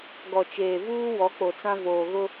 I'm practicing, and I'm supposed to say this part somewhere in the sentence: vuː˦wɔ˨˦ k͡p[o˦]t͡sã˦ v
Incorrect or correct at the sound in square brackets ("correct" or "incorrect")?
incorrect